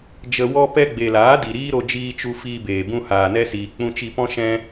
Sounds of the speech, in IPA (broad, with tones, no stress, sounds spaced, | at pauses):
d͡ʒ ə˧ w ɔ˧ p ɛ˧ ɡ͡b e˨ l aː˨˦ d i˨ ɾ iː˦ ɾ o˧ d͡ʒ iː˧ t͡ʃ u˧ f iː˧ b eː˨ b ũ˧ h aː˨ n ɛ˧ s iː˨ k͡p ũ˧ t͡ʃ i˧ p ɔ̃˦ ʃ ɛ̃˦